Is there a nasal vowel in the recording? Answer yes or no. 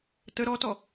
no